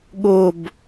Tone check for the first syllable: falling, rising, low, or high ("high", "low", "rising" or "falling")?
falling